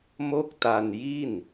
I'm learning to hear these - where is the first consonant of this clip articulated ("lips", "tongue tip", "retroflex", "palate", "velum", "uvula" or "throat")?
lips